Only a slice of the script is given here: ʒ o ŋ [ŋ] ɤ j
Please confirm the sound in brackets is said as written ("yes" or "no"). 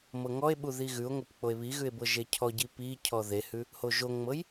no